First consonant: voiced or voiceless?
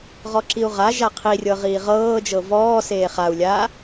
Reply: voiced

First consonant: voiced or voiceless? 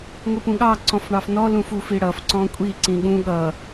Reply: voiced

